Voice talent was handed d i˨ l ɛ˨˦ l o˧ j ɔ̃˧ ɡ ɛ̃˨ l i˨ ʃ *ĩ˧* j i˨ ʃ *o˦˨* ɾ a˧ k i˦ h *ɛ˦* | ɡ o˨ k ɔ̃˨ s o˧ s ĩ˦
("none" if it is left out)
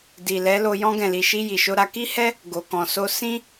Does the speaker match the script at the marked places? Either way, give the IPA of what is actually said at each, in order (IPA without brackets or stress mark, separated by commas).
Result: i˧, o˧, ɛ˦